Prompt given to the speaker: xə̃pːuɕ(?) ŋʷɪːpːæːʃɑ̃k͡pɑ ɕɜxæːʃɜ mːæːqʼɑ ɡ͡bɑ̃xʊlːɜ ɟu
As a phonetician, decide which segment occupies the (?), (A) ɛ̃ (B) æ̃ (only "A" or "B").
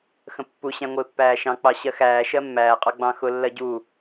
B